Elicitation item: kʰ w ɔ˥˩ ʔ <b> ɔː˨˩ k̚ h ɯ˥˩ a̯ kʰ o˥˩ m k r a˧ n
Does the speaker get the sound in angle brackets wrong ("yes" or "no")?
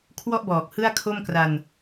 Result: no